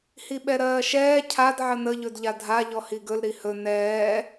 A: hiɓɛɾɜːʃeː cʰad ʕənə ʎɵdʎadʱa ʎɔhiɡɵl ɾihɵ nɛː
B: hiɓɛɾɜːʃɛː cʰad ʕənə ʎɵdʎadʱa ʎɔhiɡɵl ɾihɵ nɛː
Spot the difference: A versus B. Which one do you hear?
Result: B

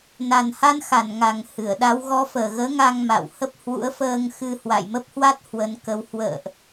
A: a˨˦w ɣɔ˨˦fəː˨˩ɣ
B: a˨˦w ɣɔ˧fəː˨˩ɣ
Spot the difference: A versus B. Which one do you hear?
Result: A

